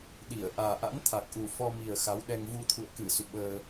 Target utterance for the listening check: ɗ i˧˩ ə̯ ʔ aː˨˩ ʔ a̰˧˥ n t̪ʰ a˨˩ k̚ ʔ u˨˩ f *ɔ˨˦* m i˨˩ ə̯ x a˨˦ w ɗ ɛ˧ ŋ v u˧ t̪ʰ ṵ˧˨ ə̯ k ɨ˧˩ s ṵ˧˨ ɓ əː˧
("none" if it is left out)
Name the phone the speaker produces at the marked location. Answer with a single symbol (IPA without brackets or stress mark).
ɔ˧